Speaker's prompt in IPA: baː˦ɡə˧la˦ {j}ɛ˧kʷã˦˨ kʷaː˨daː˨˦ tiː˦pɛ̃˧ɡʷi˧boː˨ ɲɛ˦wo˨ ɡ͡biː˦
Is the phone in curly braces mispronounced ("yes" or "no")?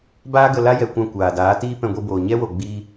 no